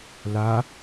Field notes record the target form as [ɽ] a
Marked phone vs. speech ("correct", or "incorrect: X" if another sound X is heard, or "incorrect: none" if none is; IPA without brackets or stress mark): incorrect: l